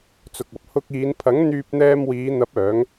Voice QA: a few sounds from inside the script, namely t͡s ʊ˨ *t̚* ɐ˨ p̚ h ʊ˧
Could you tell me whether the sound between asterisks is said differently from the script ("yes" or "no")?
yes